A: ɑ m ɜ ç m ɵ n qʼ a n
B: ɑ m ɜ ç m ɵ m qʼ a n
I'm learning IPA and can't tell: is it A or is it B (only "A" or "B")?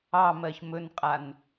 A